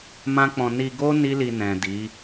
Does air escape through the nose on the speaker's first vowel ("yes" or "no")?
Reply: yes